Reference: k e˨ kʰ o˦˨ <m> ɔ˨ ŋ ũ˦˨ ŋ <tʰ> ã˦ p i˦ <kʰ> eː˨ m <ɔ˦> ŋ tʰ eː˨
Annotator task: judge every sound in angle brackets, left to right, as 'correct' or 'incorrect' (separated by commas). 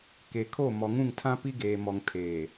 correct, correct, incorrect, incorrect